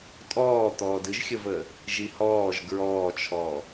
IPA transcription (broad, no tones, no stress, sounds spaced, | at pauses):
tʼ ɔː t̪ ɔː d ɨ ʒ xʲ ə v əː | ʒ i h ɔː ʒ ɡ ɹ ɔː t͡ʃʰ ɔː